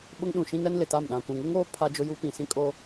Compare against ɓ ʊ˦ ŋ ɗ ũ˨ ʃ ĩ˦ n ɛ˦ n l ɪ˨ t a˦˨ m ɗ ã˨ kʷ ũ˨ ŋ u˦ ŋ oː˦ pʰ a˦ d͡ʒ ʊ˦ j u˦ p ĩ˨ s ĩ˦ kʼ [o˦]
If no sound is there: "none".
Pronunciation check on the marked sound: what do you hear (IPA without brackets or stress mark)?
o˦